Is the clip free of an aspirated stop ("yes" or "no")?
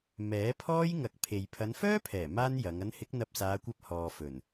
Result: no